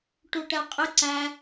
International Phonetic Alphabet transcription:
ʈ u ʈ ɛ qʼ ɪ ǀ æ

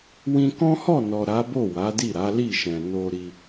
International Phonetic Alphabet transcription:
w ĩ˧ k ɔ̃˦ h ɔ˦˨ n ɔ˨ ɾ a˨˦ b o˦˨ w a˨˦ d i˦˨ ɾ a˨˦ l i˦˨ ʃ ɛ̃˨ n o˧ ɾ i˧

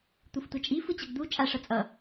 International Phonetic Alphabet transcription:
t̪ u f tʷ ʌ t͡ʃʼ i f ɯ t͡ɕ ʌ ɡ d̪ u t͡ʃʼ a ʂ ʌ t͡sʼ ʌ

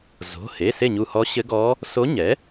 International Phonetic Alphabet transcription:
z o̤˩˧˩ h e˩˧˩ s e˥˩ ɲ u˧˩ h ɔ˧˥ ɕ ɘ˧˥ ɡ ɔ˧˥ | s o˧˥ ɲ ɛ˩˥

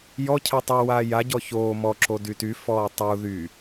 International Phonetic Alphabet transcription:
j ɔ cʰ ɛ tˤ u w aː j a ɟ ɔ ç oː m ɔ ǁ o d y t y f ɔː tˤ u ð y

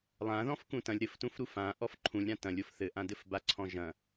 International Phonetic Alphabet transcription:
lˠ ã ð ɔ̃ f k ũ t ɐ̃ lʲ ɾ ɘ f t ũ f ɾ u f ã ʔ ɔ f ǃʰ ũ lʲ ɾ ã t ɐ̃ lʲ o f θ ɘ ʔ ã d ɘ f b a ǀʰ ɔ̃ ʒ ɐ̃

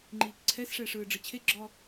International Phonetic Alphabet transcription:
ŋ͡ǃ iː k ǀʰ ɛ s ʂ ɛː ʂ ɯː ɖ͡ʐ ɯ t͡ɕʰ e ɡ͡ǁ ɔ

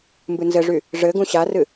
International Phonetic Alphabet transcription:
m b ɨ n z ɘ ʐ y | ʐ ɘ ɡ ũ ɕ a r ɨ

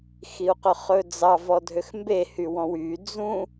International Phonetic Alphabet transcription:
x i u̯ q ɵ χ ɵ d͡z ɑ v ɔ dʱ ø x m b e h y w ɔ̃ w y d͡z ũ

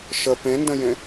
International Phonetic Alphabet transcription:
ʃ ə p ẽ n d ə̃ j ẽ

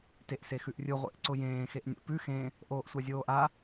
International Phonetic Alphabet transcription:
t e ʔ s e x ʉ ʔ rʲ ɯ ʁʷ ḛ ʔ ǀ ʊ j ẽː x e ʔ nʲ ə̰ p ʉ x ẽ | ʔ oː ʔ sʷ a zʲ oː ʔ a

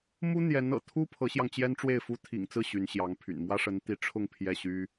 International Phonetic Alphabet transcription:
m u˥ n̪ j ɛ˧˥ n ɤ̰˨˩ t̪ʰ u˥ pʰ ɤ˧˥ ɕ j ɑ˧ ŋ t͡ɕ j ɛ˥ n ʈ͡ʂ w e˥˩ ɪ̯ f u˥ t̪ʰ ḭ˨˩ ŋ t͡s ɹ̩˥˩ ɕ y˧˥ n ɕ j ɑ˧˥ ŋ pʰ y̰˨˩ n m w ä˥ ʂ ə˧˥ n t̪ i˧˥ ʈ͡ʂʰ ʊ˥˧ ŋ pʰ j ɛ˥˩ ɕ y˥

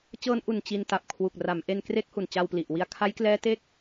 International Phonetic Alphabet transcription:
t͡ɕ ɤː˧ n ʔ u˨˩ n t͡ɕ i˧ n t a˨˩ p̚ kʰ w u˨˩ k̚ r a˩˦ m ʔ e˧ n k r e˦˥ k̚ h u˨˩ n t͡ɕ a˧ w p l i˨˩ ʔ w i˧ a̯ kʰ a˦˥ j k l ɛː˦˥ t e˦˥ k̚

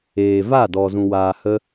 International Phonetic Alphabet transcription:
eː˨ v a˦˨ d ɔ˨ z ũ˨ w aː˨ h ə˧

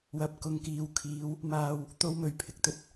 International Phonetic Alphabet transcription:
w ɐ˧ p̚ k ʊ˨ ŋ k iː˨ w kʰ iː˨˧ w | m aː˧ w | t̪ o˥ w m ɵ˨˧ ɥ pʰ ɪ˨ k̚ t̪ ɵ˧ t̚

